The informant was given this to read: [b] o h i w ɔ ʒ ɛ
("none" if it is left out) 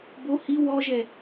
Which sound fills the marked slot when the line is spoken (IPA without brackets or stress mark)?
b